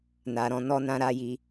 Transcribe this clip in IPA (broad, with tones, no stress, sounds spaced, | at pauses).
n a˨ ɾ ɔ̃˧ n ɔ˨ n ã˨ ɾ a˨ j i˨˦